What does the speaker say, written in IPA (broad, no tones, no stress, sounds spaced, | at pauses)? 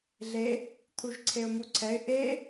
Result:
ɮ e | t̪ʰ u ʒ ǀʰ e ʊ̯ m u ǀʰ ɛ ɪ̯ ʔ e